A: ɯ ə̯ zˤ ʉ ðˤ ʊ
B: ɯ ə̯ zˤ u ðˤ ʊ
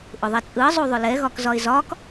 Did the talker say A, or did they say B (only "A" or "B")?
B